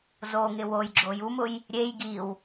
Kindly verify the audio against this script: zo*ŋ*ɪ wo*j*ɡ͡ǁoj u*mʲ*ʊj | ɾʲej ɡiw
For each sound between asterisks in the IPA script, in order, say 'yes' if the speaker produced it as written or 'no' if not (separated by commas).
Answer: yes, yes, no